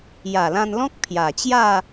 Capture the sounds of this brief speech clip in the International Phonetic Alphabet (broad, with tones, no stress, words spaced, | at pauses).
ja˨˩lã˧nlɔ̃˦k̚ pʰja˨˩t͡ɕja˥˧